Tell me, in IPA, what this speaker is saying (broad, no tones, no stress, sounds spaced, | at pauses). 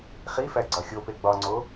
χ i f æ ɡ͡ǀ ɒ xʲ o p e ɡ͡b ɒ ŋ͡ǀ o